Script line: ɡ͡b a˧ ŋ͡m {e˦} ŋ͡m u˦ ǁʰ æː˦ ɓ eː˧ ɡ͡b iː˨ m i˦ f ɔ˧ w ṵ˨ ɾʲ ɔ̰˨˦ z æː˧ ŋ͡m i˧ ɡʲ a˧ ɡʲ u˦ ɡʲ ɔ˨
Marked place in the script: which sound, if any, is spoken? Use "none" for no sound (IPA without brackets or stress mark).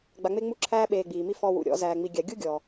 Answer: e˦